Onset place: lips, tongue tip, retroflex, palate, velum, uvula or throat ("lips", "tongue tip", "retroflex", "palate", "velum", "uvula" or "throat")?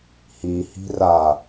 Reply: throat